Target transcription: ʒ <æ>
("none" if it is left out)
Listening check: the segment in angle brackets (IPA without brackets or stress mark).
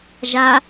a